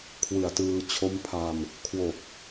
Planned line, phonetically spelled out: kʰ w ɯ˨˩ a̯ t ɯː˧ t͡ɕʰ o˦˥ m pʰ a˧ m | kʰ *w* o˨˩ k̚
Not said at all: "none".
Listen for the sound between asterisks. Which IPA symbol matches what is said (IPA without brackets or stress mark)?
w